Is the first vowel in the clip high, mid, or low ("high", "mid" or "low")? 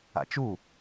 low